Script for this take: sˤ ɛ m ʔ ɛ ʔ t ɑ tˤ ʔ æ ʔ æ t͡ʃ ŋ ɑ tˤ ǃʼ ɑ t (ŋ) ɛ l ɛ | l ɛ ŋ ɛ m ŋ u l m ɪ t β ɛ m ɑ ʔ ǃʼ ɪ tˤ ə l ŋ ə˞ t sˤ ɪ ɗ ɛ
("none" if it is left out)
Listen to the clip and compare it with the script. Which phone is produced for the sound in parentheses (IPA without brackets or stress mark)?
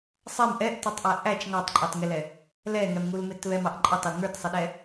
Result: ŋ